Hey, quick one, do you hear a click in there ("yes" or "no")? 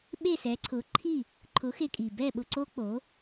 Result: yes